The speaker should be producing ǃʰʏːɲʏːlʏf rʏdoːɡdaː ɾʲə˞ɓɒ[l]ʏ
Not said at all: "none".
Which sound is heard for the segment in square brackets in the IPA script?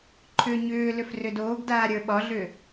ɮ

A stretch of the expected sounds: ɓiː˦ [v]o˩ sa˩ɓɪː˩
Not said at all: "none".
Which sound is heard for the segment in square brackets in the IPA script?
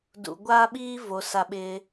v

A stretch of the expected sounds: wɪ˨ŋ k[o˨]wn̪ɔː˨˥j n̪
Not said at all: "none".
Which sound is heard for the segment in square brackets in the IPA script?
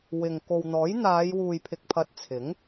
o˨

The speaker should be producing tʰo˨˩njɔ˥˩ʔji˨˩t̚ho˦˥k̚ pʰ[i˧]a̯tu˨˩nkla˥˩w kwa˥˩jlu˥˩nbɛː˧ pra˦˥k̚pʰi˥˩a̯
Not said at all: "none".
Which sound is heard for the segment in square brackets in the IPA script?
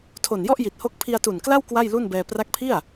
i˧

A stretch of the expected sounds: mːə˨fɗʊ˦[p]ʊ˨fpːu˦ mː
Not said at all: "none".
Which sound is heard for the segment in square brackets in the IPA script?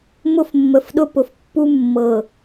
p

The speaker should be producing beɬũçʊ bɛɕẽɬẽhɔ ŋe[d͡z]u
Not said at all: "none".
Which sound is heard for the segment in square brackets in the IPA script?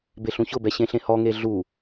ɮ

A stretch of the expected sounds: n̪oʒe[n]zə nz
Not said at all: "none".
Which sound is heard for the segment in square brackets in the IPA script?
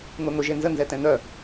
n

